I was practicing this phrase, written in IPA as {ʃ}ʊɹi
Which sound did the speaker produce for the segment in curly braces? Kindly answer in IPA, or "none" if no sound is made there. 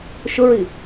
ʃ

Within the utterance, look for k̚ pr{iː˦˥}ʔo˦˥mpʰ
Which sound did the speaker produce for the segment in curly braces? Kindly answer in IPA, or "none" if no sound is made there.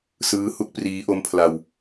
iː˦˥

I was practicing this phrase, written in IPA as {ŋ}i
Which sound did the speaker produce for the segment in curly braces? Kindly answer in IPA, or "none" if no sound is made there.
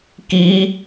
k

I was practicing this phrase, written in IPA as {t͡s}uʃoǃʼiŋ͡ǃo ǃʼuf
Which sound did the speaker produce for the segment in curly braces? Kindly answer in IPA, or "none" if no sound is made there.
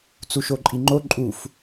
t͡s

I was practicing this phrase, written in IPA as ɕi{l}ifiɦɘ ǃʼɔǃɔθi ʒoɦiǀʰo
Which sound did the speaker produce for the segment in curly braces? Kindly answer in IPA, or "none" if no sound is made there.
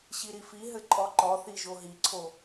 ɾ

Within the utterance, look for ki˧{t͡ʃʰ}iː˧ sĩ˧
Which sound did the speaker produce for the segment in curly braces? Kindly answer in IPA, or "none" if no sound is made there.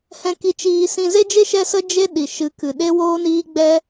t͡ʃ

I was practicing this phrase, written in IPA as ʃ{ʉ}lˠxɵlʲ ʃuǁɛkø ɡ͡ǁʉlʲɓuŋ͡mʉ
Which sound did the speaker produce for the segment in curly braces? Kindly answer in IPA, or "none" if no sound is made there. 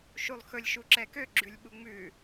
u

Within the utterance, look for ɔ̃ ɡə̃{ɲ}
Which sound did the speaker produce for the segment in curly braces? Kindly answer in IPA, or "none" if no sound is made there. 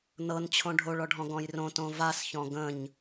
ɲ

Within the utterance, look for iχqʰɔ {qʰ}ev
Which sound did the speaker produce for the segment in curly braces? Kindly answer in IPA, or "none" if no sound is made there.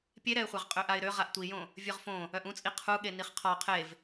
qʰ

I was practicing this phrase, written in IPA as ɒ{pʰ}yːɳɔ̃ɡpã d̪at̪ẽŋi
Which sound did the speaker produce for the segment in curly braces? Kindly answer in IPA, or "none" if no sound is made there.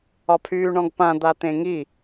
pʰ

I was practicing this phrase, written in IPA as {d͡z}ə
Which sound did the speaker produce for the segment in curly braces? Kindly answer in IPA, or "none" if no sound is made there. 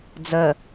d͡z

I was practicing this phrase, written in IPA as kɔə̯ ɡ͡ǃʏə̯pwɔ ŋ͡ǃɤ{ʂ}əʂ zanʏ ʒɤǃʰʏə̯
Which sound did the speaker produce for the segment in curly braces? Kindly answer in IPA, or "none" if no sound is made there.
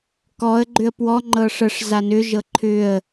ʂ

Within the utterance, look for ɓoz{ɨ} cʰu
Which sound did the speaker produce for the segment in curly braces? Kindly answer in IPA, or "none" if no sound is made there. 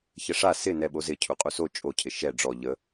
ɪ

